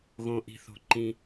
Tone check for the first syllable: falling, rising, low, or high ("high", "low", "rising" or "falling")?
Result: low